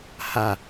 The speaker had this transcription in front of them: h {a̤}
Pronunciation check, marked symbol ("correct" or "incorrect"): incorrect